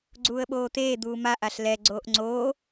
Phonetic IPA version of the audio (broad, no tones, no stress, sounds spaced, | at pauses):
ɡ͡ǀ uː ə̯ ɓ oː t̪ eː d̪ uː m a ʔ a ɬ l ɛ ɡ͡ǀ oː ʔ ŋ͡ǀ oː